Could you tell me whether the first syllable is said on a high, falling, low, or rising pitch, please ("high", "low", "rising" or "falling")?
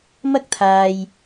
high